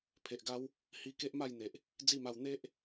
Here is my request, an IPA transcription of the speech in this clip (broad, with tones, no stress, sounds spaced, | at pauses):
pʰ e˨ ʔ ɡ a˦ w | h i˧ k e˦ ʔ m a˥˧ j n̪ e˨ ʔ | d͡z i˥˧ m a˧ w n̪ e˦ ʔ